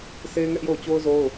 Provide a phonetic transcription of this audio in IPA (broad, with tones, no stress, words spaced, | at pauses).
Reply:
sʰe˦ɪ̯ŋɛ˦ʔjo˦˨ʊ̯ t͡ɕo˦ʊ̯zo˦ʊ̯